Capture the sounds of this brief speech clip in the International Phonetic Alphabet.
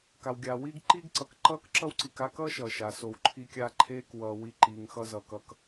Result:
ka˩wɡʲaː˩wiː˥ɡ ǃiː˥ɡǀʌ˨k ǃʌː˥kǁʌ˥wǀi˨k a˥kʌː˥ʃʌː˩ ʃa˩so˨wǃʰiː˦kʲaː˦ ǃʰeː˥k wʌː˨ wi˦ǃiː˨ŋxʌ˥zʌ˩ kʌ˥k

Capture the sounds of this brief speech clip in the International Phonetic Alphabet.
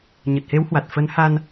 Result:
ɲə˨˩t̚he˨˦whwa˨˩t̚ fə˨˦n ha˧n

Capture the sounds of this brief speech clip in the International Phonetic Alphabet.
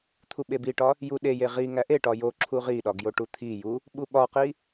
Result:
t̪ʰuɓebiʈɒ | juɗeje ʁi ŋæʔeʈɒ jo ǁʰuʁiɗɒ ɡjoʈut̪ʰiju | ɓuɓɒqi

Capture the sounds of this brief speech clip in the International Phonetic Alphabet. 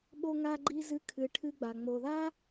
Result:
ɓo˦ŋa˦ɡ͡ǃi˦ zɨ˦kʰɨ˨ʈʰɨ˦ɡ͡ba˩ ŋ͡mo˩ða˥

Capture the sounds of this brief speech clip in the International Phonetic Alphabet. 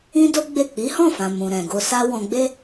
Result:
ĩ˦do˦ɡ͡be˦˨ k͡pi˨˦hɔ̃˦˨fã˨ mũ˨ɾɛ̃˨ɡo˧ sa˦ wɔ̃˧ɡ͡be˦

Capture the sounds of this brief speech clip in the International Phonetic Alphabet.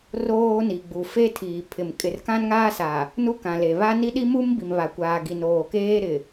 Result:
roː˦ni˨ɡ͡bu˨ fe˦tʰiː˨pʰɪ˨m kʼɪ˨rkã˦nŋaː˦sa˨ | nu˦kã˨le˨ βa˦ ni˦ɗi˦mu˦m bi˨mβa˨kʷaː˨ ɡi˨noː˨keː˦ ɾɪ˨

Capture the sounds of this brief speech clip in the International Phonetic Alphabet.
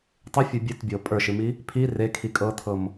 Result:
tˤɨfʲə˞ bʲɨtbʲɤ pʼə˞ʃɨmi | pʰi rekʰi kʼɤt̪ʰɤm

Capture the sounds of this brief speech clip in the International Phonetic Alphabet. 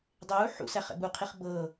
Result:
dˤeu̯ ħṵ sæχɛ̰buqʰiχ bɤ

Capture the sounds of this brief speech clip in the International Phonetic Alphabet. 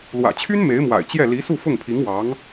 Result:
lwä̰˨˩t͡ɕʰy˥n me˧˥ɪ̯mwa̰˨˩ɪ̯ t͡ɕjɛ˥˩ li˧˥su˥˧ fʊ˥˩ŋpʰi˧˥ŋwɑ˧˥ŋ

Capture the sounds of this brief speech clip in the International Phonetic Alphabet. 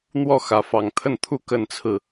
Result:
n̪wɔ˥˨xä˨˦ fɑ˨˩ŋt̪ʰə˥˨nt̪ʰu˥˨ kə˥˨nt͡sʰɹ̩˥˨

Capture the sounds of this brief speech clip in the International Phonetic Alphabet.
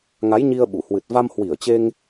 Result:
ŋa˨˦jɲi˧ə̯ɓu˧˩hwɨ˨˩t̚ va˧mhwi˧˩ə̯t͡ɕe˧ŋ

